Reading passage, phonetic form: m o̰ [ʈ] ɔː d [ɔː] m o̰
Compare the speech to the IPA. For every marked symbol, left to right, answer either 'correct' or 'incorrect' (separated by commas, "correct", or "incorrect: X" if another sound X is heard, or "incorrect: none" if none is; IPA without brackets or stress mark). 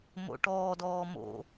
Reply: correct, correct